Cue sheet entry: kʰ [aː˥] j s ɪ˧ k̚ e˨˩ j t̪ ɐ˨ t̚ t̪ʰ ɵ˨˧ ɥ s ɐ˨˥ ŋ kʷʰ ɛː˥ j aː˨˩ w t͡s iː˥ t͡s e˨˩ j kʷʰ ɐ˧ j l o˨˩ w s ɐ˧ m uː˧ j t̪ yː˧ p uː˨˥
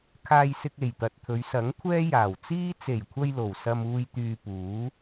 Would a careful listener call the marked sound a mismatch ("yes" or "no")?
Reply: yes